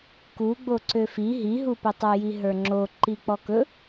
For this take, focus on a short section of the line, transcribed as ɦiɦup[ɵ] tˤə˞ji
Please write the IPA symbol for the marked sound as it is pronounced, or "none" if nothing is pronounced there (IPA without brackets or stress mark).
ɵ